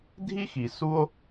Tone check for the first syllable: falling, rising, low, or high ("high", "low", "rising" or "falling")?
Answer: high